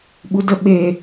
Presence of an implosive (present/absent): present